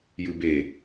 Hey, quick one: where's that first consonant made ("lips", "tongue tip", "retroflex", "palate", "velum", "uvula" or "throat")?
palate